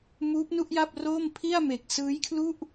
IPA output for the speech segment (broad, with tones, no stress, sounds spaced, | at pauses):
m uː˦˥ p̚ n u˥˩ ʔ j a˥˩ p̚ r oː˥˩ m pʰ i˥˩ a̯ m e˨˩ k̚ s ɯː˦˥ j kʰ l u˥˩ ʔ